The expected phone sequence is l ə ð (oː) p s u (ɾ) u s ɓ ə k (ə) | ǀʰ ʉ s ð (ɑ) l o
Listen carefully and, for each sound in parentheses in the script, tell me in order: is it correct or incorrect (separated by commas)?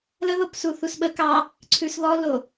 incorrect, incorrect, incorrect, incorrect